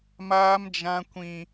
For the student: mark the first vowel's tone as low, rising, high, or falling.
high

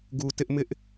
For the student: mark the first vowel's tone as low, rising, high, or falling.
low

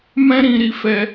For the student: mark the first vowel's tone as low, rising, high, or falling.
high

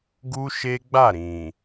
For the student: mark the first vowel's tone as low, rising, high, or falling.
high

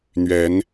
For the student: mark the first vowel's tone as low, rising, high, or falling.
rising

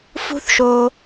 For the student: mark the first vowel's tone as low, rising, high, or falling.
high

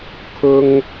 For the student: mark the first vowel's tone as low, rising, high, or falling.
high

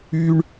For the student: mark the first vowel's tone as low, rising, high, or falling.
high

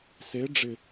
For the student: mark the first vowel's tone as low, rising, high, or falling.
rising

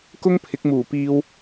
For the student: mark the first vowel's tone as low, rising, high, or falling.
high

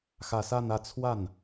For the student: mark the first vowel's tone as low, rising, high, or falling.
low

